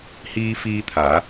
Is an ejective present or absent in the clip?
absent